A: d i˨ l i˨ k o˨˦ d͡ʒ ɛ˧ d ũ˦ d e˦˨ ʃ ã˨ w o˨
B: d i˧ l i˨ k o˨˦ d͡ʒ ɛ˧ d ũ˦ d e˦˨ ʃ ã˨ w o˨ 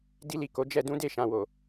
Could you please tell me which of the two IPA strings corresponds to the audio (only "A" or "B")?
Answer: B